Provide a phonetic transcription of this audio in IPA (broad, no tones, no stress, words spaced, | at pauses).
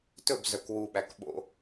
tɵb zœkwuɓæk ɓo̰